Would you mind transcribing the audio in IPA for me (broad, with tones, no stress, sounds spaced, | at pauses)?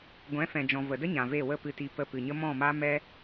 ɡʷ ɛ̃˨˦ f ɛ̃˨ d͡ʒ ɔ̃˨ v ə˨ d ə˦ ɲ ã˨ v e˦˨ w ə˦˨ p ɨ˧ t i˧ p ə˧ p ɨ˨ ɲ ə˦ m ɔ̃˦˨ m a˦ m ɛ˦